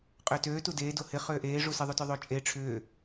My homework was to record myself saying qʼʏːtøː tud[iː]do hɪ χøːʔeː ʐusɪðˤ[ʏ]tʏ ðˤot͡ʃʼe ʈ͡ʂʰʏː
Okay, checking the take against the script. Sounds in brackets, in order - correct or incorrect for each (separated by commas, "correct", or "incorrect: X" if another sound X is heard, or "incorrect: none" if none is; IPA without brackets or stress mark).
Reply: incorrect: eː, incorrect: u